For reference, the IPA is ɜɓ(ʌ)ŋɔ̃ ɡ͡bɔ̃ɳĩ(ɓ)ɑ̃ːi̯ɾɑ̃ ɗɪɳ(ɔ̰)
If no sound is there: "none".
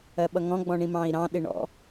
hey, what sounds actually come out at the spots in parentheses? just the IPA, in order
ʌ, m, ɔ̰

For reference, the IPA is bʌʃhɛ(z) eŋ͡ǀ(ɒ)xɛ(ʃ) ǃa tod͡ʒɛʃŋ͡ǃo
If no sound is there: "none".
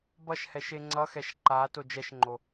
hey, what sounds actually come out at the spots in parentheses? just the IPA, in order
ʃ, ʌ, ʃ

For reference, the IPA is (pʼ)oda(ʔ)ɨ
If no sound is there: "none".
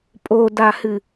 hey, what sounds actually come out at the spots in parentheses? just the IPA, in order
pʼ, h

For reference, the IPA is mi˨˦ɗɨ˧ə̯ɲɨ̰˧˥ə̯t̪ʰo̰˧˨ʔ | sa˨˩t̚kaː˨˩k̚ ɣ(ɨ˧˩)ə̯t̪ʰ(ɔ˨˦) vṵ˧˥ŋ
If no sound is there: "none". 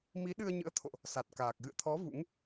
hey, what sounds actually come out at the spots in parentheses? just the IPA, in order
ɨ̰˧˨, ɔ˨˦

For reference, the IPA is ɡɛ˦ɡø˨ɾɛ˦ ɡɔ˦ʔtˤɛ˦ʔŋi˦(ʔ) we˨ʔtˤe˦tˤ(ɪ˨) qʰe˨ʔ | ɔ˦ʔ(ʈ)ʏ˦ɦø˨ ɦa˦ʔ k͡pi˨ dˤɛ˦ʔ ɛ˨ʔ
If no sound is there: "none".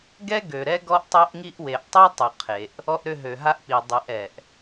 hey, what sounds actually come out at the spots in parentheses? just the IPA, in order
ʔ, ʏ˨, ɾ

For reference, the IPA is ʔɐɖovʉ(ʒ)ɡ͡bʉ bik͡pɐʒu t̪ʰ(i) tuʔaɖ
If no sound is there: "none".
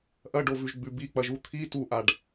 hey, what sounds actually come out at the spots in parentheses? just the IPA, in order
ʒ, i

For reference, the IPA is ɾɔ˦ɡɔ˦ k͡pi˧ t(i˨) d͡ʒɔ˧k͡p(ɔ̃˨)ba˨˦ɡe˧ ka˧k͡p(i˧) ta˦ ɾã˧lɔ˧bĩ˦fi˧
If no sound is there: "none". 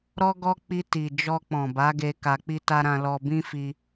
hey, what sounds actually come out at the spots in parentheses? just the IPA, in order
i˨, ɔ̃˨, i˦

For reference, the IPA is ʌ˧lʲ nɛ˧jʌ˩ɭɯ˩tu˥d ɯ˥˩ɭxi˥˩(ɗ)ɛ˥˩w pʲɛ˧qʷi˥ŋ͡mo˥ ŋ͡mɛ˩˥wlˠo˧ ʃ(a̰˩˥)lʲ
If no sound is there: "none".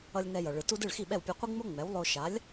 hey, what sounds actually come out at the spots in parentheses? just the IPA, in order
ɓ, a˩˥

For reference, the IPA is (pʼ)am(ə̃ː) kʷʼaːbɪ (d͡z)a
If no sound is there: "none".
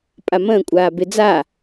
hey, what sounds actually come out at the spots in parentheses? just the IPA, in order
pʼ, ə̃ː, d͡z

